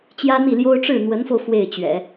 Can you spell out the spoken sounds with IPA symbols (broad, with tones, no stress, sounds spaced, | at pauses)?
t͡ɕ j ä˥ n̪ i˥˩ l j o˥ ʊ̯ ʈ͡ʂ ɻ̩˥˩ n̪ w ə˧˥ n f o˧ ʊ̯ f w e˥˩ ɪ̯ t͡ɕ ɥ ɛ̰˨˩˦